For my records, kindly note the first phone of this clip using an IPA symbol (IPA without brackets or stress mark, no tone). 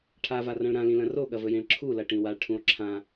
ʈʰ